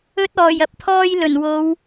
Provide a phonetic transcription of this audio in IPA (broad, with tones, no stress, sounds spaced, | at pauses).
ɵ˧ t̚ ɔː˨˩ j ɐ˨ p̚ t̪ʰ ɔː˧ j l ɵ˨˩ n w o˨˧ w